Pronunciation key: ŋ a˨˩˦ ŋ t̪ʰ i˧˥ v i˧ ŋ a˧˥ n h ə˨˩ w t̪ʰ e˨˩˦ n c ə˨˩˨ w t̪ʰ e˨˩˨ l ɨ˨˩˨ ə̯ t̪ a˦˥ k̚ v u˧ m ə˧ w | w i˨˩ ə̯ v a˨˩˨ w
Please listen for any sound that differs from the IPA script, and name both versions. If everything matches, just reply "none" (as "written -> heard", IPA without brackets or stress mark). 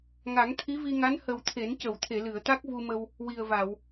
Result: none